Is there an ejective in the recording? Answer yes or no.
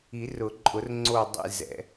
yes